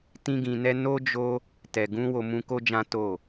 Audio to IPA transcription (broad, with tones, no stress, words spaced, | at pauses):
tĩ˦ɡĩ˧nɛ˦ no˦d͡ʒo˦ | tɛ˨ɡũ˧ wo˧mũ˧ko˦d͡ʒã˦ to˦˨